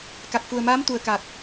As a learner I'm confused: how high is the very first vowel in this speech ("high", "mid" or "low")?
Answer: low